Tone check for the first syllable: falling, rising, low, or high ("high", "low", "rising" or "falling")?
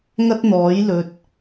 high